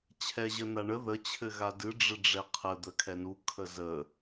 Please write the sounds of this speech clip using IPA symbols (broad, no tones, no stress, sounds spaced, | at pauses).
t͡ɕʰ ɛ ʑ ə n a ɳ ə ð ə t͡ɕʰ ɘ ɣ a d ɨ ɖ͡ʐ ɘ ɖ͡ʐ ɛ qʰ ə d̪ ə kʰ ɛ n u kʰ ə z ə